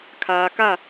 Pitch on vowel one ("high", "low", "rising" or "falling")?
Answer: low